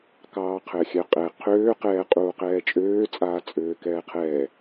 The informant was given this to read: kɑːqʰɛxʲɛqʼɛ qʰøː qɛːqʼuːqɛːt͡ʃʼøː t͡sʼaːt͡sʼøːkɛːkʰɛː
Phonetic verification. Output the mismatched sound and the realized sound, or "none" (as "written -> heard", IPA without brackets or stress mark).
kʰ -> qʰ